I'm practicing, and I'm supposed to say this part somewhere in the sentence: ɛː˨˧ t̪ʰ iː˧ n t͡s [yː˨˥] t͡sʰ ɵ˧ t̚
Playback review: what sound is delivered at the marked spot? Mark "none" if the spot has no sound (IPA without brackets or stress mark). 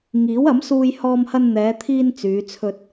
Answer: yː˨˧